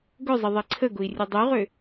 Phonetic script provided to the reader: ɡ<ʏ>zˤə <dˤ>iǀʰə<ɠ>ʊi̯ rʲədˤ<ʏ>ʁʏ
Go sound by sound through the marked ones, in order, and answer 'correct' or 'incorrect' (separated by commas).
correct, incorrect, incorrect, incorrect